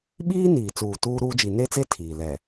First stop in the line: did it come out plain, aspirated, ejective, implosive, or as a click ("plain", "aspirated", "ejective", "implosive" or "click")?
implosive